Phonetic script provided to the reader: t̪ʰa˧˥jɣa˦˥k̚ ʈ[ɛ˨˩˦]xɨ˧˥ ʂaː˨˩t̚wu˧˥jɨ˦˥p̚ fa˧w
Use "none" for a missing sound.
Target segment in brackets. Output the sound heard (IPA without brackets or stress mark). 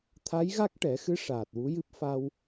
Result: ɛ˨˩˦